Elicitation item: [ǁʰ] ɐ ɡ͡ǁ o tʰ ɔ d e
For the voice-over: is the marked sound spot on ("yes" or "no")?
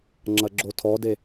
no